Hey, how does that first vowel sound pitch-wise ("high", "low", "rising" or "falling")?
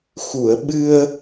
low